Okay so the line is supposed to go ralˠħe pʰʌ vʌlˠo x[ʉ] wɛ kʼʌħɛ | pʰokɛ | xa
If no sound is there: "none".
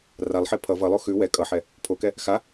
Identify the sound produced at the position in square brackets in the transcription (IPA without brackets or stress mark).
ʉ